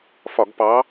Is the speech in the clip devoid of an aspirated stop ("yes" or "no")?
yes